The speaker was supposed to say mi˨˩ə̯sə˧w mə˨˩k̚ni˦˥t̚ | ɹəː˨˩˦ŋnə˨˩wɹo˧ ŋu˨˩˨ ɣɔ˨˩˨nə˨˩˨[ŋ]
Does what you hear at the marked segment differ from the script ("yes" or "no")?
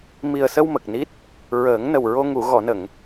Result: no